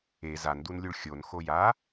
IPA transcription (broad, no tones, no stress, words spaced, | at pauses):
e zandunlʲuɭ xʲon xoja